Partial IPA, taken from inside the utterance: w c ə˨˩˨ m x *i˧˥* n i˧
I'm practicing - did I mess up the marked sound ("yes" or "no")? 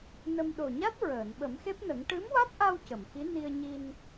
no